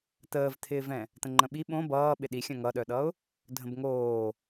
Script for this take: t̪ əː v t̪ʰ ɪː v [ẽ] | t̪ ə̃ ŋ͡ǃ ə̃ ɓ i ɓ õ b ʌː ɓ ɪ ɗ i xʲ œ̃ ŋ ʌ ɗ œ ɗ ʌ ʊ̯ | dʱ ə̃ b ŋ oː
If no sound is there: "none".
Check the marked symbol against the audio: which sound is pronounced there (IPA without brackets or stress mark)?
ɛ̃